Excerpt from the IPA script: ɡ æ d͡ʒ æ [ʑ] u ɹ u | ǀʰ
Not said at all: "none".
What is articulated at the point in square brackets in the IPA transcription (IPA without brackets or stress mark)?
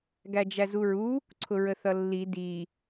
z